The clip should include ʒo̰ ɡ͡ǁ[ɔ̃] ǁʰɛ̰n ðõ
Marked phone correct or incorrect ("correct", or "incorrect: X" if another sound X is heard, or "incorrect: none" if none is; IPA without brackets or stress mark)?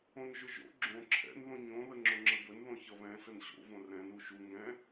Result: incorrect: õ